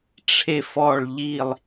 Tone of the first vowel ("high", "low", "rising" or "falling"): low